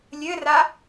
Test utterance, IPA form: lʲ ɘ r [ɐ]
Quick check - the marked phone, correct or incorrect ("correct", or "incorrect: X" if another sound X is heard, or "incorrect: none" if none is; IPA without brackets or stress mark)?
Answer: incorrect: a